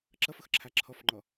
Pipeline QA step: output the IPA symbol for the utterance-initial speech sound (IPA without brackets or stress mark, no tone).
ǁ